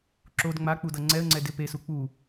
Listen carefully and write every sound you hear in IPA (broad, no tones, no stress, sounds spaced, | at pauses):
ǁ o d ŋ͡m a k͡p u d ʌ ŋ͡ǀ ɛ ə̯ ŋ͡ǀ ɛ d ɪ p e s u k͡p u